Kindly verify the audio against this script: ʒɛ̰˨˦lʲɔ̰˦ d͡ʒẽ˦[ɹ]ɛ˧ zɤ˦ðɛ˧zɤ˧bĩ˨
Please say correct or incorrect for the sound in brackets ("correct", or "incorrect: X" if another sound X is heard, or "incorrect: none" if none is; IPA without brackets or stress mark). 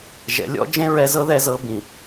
correct